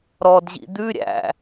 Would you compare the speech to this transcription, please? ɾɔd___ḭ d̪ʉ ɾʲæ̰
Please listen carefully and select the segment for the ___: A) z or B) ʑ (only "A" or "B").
B